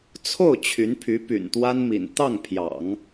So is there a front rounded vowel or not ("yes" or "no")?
yes